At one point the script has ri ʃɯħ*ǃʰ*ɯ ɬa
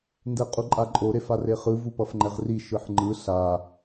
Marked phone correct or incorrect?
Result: incorrect